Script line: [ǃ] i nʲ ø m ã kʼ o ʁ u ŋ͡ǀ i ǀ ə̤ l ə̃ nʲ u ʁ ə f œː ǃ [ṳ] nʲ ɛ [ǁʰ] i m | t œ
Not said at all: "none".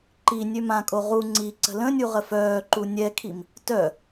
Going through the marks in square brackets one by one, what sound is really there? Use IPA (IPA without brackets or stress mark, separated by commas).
ǃ, u, kʰ